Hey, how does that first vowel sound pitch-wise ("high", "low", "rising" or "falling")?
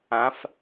rising